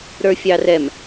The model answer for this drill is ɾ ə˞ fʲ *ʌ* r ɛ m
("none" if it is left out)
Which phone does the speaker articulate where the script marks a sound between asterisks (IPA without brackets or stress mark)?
ɑ